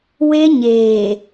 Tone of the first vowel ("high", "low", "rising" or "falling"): high